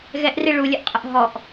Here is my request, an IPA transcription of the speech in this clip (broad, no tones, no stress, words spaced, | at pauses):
ɣɛʔri ɭulʲəʔqʼəʔ ɦɔʔ